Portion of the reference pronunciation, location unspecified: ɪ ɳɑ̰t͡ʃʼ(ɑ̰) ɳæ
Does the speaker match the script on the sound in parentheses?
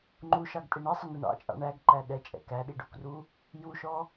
yes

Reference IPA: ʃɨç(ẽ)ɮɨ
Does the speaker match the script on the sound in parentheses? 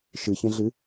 yes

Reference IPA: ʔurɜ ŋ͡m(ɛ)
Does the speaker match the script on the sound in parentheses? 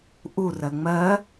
no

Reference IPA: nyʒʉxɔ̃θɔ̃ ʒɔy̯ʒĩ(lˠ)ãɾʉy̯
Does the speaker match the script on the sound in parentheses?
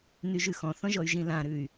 no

